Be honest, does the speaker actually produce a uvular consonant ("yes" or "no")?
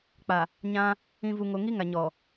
no